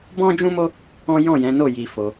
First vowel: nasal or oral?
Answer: nasal